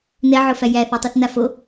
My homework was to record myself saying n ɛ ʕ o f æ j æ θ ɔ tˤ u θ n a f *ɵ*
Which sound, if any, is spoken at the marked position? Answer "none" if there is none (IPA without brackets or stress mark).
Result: o